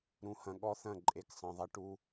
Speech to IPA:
ɾ ũ˧ h ɐ̃˧ ɠ ɔ˦ θ ɐ̃˦˨ ǃʼ e˧ k sˤ ɐ̃˧ ðˤ ɐ˦ ʈ u˦

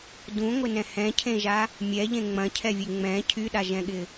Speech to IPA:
d ũ ŋʷ ɪ n ɛ̃ h ɛ̃ cʰ ẽ ʒ a | mʲ ɛ ʎ ẽ ŋ͡m ɐ̃ cʰ ɛ vʲ e ŋ͡m ɛ̃ cʰ y ɗ a ʒ ɛ̃ ɠ ɪ

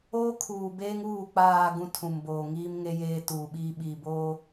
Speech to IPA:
oː˦ kʰ uː˨ b eː˦ ŋ uː˦˨ k͡p aː˨ ɡ ũ˦ tʰ ũ˨ m b oː˨ ŋ iː˦ m ŋ e˦ j eː˦ t uː˨ ɓ iː˦ ɓ iː˨ b oː˦

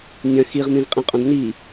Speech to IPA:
nʲ ɐ̃ x i ʁ m ĩ z qʼ ĩ qʼ õ d n i

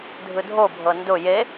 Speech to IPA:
dʱ ɯ dʱ o bʱ ɤ n d ʊ j e

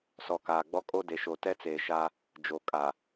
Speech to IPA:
s ɔ˨ k aː˨ ɡ͡b ɔ˦ kʼ o˦ d e˨ ʃ o˨ t ɛ˦ t͡s eː˨ ʃ a˦ | d͡ʒ o˨ kʼ a˨

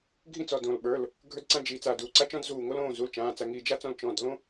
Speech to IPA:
ɡʱ ĩ˥ t͡s ɔ˩˧˩ d õ˧˩ l ɓ ə˞˩˧˩ l | ɡʱ ə˞˥ d ǀ ã˥ d͡ʒ i˩˧˩ t͡s a˧˩ d uː˩˧˩ ǀ a˥ t͡ʃ ɔ̃˥ d z uː˧˩ ŋ o˥ l õː˩˧˩ z u˩˧˩ l t͡ʃ ãː˩˧˩ t͡s a˧˩ ŋ i˧˩ d͡ʒ a˥ t͡s ɔ̃˥ l t͡ʃ ɔ̃˩˧˩ d l õ˥

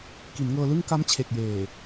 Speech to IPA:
k i˩˦ n ŋ ɤː˧ l ɯ˥˩ ŋ k a˦˥ m t͡ɕʰ e˨˩ k̚ j eː˨˩

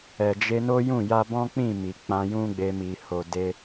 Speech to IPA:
ɛ˨ d͡ʒ e˧ n o˦ j ũ˦˨ j a˧ b ɔ̃˦ k͡p ĩ˦˨ m i˨ k͡p ã˧ j ũ˦ ɡ͡b e˧ m i˨ h o˨ d e˧

